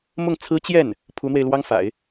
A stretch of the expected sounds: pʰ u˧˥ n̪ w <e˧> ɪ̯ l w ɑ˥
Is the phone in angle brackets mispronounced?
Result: no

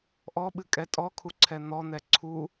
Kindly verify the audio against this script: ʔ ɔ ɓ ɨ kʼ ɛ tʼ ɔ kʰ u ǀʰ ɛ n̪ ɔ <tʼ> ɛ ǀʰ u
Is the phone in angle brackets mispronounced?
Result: yes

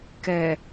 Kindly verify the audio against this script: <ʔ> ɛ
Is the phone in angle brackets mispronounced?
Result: yes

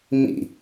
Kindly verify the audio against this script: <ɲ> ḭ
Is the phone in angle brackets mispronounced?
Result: yes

